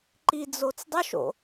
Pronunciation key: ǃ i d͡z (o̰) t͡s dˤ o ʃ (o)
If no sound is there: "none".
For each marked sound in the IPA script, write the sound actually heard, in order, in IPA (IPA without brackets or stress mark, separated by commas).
o, o̰